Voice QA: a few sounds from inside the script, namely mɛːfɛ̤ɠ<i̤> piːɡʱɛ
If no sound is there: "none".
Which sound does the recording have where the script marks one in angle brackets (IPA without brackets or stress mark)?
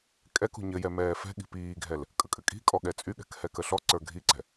i̤